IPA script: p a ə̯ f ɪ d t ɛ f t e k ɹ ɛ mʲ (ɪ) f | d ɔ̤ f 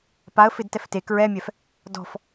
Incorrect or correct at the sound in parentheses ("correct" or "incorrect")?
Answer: incorrect